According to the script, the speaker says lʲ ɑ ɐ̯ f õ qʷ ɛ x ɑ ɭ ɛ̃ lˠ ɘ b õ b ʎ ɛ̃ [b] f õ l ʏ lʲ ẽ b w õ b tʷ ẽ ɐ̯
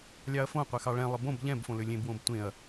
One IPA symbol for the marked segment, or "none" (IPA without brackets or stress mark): b